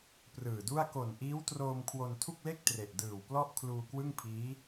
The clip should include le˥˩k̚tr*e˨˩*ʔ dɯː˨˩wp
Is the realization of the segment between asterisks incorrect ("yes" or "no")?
no